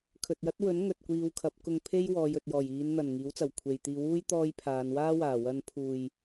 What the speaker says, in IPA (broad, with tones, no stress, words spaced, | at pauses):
kʰɵ˨t̚jɐ˥t̚wɵ˨˥n ŋɵ˨t̚kʷiː˧wkʰɐ˨˥p̚ kʊ˧ŋpʰe˥j wɔː˨˧jɵ˨t̚jɔː˨˩j iː˨˧nn̪ɐ˨˩n ŋiː˨˥wt͡sɐ˨˩wkʷʰe˨jt̪iː˧ wuː˥j t̪ɔː˥jpʰaː˨˧n waː˥ waː˨˩wɐ˧n pʰuː˨j